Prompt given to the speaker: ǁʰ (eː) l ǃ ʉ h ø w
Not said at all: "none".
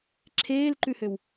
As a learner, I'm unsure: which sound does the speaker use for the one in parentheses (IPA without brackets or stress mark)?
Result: eː